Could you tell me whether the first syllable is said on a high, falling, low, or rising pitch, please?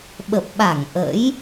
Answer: low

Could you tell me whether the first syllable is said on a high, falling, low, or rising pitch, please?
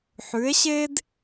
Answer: rising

